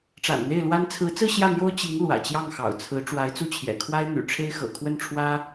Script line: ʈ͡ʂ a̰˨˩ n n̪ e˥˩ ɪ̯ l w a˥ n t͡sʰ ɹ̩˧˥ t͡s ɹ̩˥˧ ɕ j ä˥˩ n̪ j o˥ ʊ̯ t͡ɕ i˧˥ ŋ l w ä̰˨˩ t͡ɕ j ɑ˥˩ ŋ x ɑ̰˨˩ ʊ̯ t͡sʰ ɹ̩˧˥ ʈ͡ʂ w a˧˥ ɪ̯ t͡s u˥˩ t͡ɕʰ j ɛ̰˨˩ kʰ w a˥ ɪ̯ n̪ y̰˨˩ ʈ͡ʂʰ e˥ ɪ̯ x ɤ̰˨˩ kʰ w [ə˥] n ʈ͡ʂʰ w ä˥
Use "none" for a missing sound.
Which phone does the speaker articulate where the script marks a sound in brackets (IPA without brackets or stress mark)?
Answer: ə˥˩